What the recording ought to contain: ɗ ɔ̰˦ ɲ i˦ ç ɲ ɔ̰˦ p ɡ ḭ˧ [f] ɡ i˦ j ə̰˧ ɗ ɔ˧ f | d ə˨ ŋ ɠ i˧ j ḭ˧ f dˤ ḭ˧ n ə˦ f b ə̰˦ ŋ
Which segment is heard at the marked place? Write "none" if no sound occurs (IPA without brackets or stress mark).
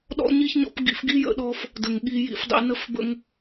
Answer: f